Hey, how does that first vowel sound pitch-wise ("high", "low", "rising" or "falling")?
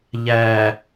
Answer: low